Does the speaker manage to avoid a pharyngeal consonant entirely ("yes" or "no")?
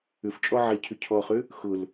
no